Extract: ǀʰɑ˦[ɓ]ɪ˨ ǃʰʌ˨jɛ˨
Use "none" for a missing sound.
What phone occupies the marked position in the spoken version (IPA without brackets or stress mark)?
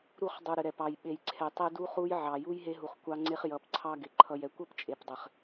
ɡ